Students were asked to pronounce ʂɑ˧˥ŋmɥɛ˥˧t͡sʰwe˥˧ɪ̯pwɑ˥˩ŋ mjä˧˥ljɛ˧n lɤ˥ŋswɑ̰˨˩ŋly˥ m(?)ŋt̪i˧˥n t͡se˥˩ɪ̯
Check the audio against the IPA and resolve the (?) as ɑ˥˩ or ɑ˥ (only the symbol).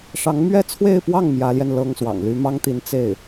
ɑ˥